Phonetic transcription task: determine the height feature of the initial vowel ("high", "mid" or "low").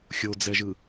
mid